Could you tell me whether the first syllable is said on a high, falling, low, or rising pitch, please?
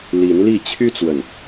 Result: rising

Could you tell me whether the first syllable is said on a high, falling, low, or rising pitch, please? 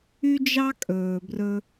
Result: high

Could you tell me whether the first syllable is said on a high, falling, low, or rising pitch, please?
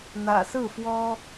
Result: low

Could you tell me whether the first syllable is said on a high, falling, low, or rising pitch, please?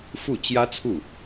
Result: falling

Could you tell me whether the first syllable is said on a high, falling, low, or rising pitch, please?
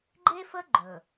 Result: high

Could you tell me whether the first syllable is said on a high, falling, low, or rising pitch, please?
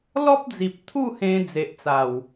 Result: high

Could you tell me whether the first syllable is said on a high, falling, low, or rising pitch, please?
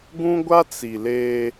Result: high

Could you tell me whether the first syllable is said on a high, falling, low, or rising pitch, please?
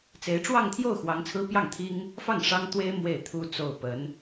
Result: rising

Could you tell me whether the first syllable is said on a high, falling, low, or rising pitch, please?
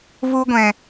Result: high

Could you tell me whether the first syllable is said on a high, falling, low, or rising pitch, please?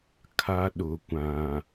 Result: high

